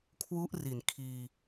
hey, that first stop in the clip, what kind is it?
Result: aspirated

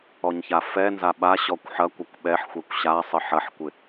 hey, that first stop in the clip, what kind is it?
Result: implosive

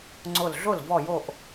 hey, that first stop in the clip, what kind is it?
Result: click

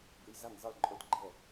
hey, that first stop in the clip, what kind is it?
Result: plain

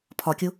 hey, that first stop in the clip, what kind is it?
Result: aspirated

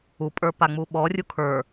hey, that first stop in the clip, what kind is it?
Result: ejective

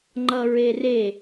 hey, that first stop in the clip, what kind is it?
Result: click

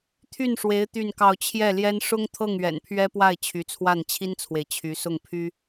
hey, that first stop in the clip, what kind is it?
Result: aspirated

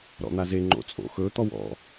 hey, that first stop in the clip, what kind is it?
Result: click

